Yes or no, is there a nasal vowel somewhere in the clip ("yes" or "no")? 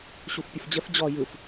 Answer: no